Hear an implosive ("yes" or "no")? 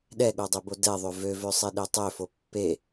yes